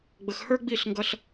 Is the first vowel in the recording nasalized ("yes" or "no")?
no